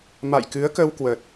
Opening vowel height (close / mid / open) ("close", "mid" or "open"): open